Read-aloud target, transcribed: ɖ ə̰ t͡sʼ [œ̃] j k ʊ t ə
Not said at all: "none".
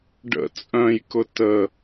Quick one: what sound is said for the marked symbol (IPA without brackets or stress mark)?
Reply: œ̃